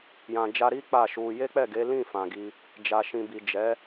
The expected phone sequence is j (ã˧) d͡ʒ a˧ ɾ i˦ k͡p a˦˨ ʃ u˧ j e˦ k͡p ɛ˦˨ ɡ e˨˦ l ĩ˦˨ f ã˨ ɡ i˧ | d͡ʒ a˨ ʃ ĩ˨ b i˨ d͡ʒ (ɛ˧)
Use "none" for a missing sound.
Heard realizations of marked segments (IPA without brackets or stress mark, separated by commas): ã˨, ɛ˨˦